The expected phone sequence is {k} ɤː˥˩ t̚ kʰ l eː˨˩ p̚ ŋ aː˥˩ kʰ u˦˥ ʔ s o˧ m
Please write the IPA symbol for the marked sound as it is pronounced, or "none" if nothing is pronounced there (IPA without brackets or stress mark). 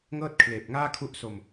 ŋ